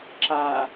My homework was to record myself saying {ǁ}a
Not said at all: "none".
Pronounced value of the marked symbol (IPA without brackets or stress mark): ǁ